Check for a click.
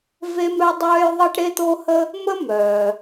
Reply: absent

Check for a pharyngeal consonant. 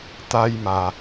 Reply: absent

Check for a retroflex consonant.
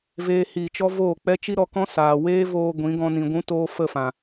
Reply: absent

